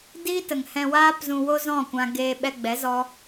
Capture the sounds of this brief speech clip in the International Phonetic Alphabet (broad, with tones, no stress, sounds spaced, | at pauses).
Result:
d iː˦ t ə˨ ŋ h ɛ̃˧ w aː˦ p z ũ˧ w o˦ z ɔ̃˦˨ kʷ ã˧ ɡ eː˧ ɓ ɛ˧ ɡ͡b ɛ˨˦ z ɔ˦